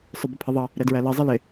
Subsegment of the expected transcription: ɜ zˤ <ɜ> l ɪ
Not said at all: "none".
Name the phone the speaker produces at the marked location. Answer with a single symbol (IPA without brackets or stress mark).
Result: ɜ